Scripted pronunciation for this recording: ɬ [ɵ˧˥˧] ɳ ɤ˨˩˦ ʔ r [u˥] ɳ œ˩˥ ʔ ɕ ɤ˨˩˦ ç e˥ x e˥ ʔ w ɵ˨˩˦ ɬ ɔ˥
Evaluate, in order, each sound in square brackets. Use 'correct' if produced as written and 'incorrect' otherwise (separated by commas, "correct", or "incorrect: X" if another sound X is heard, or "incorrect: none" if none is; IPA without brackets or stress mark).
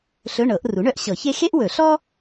correct, incorrect: u˩˥